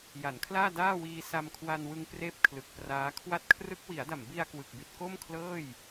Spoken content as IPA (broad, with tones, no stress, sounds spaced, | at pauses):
j a˩˦ n kʰ l aː˥˩ d aː˥˩ w iː˧ s a˧ m kʰ w a˧ n w ɯ˧ ŋ p r eː˥˩ p̚ kʰ l ɯ˨˩ k̚ p r aː˦˥ kʰ w a˦˥ t̚ kʰ r ɯ˦˥ k̚ w i˩˦ a̯ d a˨˩ m b i˧ a̯ k w ɯ˨˩ k̚ b i˨˩ t̚ k o˥˩ m kʰ l ɤː˥˩ j